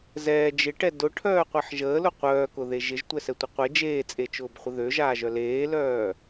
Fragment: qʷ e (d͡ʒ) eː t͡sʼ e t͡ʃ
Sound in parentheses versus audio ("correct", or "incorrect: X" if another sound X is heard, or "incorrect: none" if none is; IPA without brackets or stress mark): correct